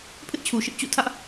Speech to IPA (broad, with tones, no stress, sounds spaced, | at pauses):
pʰ ɪ˦ ʔ t͡ɕʰ u˨ ʃ ɪ˦ ʔ t͡ɕ ṵ˦˨ tʰ ä˦ ʔ